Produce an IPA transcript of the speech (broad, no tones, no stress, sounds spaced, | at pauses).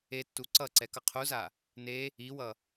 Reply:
e tː u ǀ ʌ ǀ ɛ k ʌ qʰ u z a | n e | i w ʌ